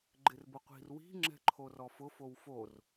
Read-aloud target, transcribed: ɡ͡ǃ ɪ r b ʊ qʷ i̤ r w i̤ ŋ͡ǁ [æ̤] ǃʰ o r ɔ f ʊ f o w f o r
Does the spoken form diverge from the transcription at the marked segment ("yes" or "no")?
yes